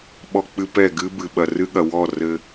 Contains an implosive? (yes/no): yes